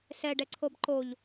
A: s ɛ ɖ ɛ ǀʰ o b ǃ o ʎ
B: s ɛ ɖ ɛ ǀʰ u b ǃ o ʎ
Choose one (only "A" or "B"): A